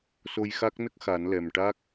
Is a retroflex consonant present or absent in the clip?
present